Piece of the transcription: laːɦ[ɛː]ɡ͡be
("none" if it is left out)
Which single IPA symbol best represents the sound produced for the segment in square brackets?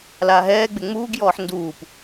ɛː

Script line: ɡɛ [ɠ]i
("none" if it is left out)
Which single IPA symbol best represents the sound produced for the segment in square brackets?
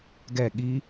ɠ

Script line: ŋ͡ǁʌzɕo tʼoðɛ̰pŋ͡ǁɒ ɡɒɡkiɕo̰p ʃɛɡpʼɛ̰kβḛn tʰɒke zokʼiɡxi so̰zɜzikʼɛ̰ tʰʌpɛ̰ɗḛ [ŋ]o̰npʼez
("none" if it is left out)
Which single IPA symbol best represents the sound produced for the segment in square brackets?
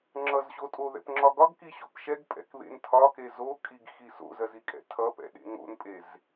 ŋ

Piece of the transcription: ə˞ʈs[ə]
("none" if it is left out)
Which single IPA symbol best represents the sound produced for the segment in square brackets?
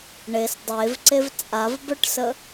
ə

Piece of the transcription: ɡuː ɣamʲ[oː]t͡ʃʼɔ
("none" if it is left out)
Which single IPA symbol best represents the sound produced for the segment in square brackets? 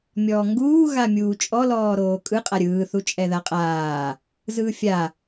uː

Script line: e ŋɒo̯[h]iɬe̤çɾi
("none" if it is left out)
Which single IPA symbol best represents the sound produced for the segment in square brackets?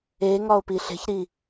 p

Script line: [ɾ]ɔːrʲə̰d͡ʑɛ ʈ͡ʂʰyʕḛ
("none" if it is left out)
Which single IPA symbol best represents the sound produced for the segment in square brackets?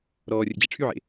ɾ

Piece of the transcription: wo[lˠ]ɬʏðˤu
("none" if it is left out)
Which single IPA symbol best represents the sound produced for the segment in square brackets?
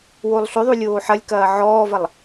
lˠ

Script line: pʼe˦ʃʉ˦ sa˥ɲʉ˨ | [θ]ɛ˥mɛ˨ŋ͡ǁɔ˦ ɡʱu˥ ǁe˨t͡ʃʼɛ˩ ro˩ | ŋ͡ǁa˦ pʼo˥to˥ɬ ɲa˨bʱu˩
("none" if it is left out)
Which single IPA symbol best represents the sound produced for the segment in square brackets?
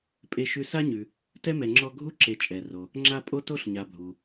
t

